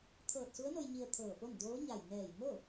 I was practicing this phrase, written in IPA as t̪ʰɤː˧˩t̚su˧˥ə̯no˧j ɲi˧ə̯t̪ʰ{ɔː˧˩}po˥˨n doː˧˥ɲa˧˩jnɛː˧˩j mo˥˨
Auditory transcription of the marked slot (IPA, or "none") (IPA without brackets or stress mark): ɤː˧˩